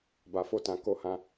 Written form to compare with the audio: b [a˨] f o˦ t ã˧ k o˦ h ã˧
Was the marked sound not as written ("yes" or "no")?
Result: yes